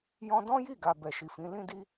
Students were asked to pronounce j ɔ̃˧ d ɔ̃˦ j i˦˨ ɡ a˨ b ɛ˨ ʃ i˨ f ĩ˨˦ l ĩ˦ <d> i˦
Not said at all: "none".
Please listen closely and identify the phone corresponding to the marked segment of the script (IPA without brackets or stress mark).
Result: d